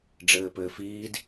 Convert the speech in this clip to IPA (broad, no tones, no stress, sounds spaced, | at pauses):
ɖ͡ʐ ɘː p ɘː f iː d